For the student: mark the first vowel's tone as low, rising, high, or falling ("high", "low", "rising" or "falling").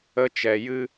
high